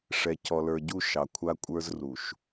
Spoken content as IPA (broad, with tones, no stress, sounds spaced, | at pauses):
ʂ ɛ˨ c ɔ˨ l ə˞˨ ɟ u˦˨ ʃ ɑ˨ kʷʰ a˦ kʷʼ ə˞˦ z r u˨ ʃ